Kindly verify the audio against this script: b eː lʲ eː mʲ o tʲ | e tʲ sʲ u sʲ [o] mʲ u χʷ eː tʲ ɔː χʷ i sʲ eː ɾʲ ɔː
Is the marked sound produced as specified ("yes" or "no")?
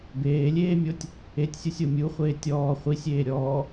yes